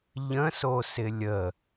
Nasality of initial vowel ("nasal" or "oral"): nasal